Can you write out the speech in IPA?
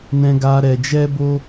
nɛ̃˧ɡa˧ ɾɛ˧d͡ʒɛ˦bo˦

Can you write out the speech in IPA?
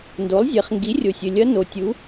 ndo˩˥lˠzʲɛ˩˧χ ŋɡi˩˥rʲo˩sʲɘ˩lʲɐ˧˥ no˩tʲu˩˧

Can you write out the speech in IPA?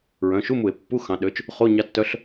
ɹœ̃˩˧˩ʃu˧˥˧mu˧˩˧e̯ pːu˧˥˧xɑ̃˩˧ɗø˩˥t͡ʃ | χo˧˥˧ɲɑ˧˥tːœ˧˥ɬ

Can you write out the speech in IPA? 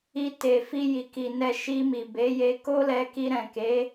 i˧te˨ fi˧ji˨ki˨ nɛ˧ ʃi˧mi˨be˨˦je˧ ko˦lɛ˧ki˧ɾɛ̃˨ ke˨˦

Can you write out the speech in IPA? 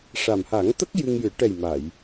ʂa˨˩mha˨˩˦ŋt̪ə˦˥k̚ jɨ˧ŋjɨ˨˩˦ ʈɛ˨˩j ma˨˩˨j

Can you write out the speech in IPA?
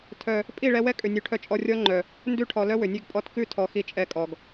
tʰœ˨ | pʼi˦˨ɭɛ˧wɛ˦ kʼʏ˨nʲʉ˨ʈʰœ˧t͡ʃʼɔ˧ rʲɔ˦ŋ͡ǃœ˨ | ndʉ˧ʈʰɔ˨ lœ˦wʏ˨nʲʉ˦˨ɡpʼɔ˦˨t kʉ˦˨tʰɔ˨ xi˧t͡ʃʼɛ˧kʼɔ˨ɡ

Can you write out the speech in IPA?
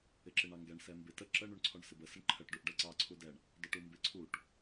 ɪǁɪɳɑŋɡɛɳ sɛmbɪ tə ǁə ɳuɳǀʰɔɳsɪbə səɳǃʰəʈ ɖuʔɖɛǀɑ ǀʰudɛɳ | dɔʈumbɪ ǀʰuʈ

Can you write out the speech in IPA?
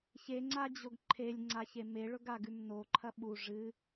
çeŋ͡ǀad͡ʑoɡ ǃʰelʲŋ͡ǀaçe meɭɵɡaɡʉm noǃʰɐ ɓu ʐɨ

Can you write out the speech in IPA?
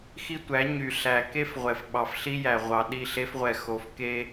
xi˦tʷæ˨˦ ɲy˨ ɬæ˨ ke˦fʁʷɛ˨f ɓɑ˨fɬi˦jæ˨ʁʷɑ˨ ɗi˦˨ɬe˦fʁʷɛ˨ xo˨f ke˦

